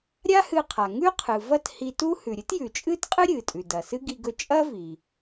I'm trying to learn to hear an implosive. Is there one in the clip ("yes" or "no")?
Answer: no